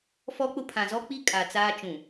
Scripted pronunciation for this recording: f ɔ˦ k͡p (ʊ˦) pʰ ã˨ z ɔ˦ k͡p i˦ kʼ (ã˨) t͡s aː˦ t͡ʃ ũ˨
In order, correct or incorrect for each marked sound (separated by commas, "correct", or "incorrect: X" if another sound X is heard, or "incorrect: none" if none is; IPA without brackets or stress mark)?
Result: correct, incorrect: a˨